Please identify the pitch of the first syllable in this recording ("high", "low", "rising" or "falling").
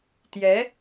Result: rising